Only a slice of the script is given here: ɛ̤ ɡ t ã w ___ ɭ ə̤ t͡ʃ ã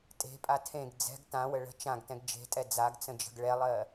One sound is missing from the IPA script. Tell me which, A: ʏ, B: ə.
B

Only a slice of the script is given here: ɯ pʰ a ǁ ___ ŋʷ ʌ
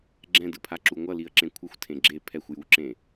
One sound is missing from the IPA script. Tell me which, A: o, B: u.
B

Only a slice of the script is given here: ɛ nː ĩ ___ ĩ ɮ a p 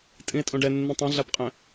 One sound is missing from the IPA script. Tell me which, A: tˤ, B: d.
A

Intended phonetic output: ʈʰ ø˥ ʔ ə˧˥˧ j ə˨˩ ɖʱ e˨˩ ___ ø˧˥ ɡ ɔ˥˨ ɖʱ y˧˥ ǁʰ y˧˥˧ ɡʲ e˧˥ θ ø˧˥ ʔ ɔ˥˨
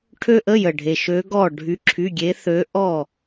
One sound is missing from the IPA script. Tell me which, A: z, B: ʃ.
B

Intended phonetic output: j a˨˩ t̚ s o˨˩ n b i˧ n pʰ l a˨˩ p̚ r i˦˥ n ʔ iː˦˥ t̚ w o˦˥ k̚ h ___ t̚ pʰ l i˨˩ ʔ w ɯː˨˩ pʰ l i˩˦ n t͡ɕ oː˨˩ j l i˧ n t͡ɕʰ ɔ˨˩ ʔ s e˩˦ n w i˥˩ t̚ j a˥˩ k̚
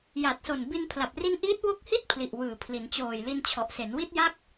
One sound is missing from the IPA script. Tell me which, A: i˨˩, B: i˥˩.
B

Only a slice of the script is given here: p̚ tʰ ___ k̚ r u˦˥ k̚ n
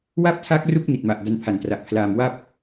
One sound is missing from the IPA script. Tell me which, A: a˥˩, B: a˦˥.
B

